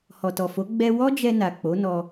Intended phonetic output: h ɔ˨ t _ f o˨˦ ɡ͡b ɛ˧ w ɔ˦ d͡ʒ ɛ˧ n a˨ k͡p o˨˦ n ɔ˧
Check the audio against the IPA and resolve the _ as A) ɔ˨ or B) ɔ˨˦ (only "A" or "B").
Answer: A